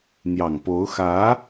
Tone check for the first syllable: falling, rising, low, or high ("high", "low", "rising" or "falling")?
low